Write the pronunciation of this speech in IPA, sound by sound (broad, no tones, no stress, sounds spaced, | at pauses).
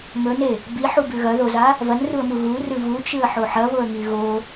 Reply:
m ɵ n e | b i ħ u b ʉ ɣ ɐ ð o z a | v ɐ n r u ə̯ m u ɣ u r ɨ v u t͡ʃ ɨ ə̯ ħ o ħ ɐ β o ə̯ ŋ i ɣ o